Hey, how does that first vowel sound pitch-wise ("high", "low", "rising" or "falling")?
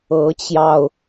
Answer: rising